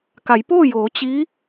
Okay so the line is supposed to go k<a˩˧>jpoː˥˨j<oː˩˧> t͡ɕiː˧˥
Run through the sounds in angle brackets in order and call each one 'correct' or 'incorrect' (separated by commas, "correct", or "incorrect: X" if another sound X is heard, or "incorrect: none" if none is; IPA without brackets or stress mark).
correct, correct